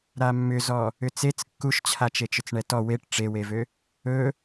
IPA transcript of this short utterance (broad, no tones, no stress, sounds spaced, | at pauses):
ɾ a mː ʏ z ɔ | ʏ t͡s e t͡s kː u ʃ t͡ɕʰ a t͡ʃ e t͡ʃ ʏ t͡s ɳ ɛ t ɔ w e ʈ ʈ͡ʂ e w e v ø | ɵ